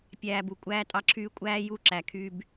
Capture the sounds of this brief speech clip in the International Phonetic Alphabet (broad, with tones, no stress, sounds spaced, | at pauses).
pʲ æː˨ b u˨ kʷʼ æː˦ tʼ ɑ˦ ǁʰ yː˦ kʷʼ æː˦ j u˦˨ ǁ æ˨ kʰ y˦ b